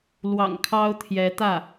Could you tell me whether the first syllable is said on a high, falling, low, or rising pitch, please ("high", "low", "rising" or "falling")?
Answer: low